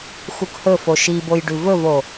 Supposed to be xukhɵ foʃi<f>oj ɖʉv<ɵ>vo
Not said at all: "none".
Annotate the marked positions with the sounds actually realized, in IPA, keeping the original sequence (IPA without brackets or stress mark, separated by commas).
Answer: b, ɵ